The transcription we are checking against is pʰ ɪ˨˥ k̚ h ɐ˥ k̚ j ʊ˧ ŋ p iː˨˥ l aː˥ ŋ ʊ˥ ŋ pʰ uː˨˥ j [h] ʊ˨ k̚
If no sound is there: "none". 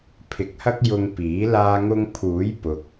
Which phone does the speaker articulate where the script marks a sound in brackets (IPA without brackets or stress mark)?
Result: p